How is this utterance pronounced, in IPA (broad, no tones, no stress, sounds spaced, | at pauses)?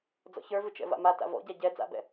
d͡z ɔ̰ ç ə˞ v ɨ t͡ʃ ɛ̰ v a̰ m a t a̰ v ɔ̰ ɟ a ɟ ɛ d͡z a̰ b ɛ̰